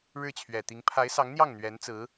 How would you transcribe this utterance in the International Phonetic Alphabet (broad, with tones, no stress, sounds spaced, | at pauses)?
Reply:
ɻ ɻ̩˥˩ t͡ɕʰ ɥ ɛ˨˩ t̪ i˧˥ ŋ pʰ a˧˥ ɪ̯ s ɑ˧˥ ŋ n̪ j ɑ˥˩ ŋ n̪ ɥ ɛ˧˥ n t͡s ɹ̩˧˥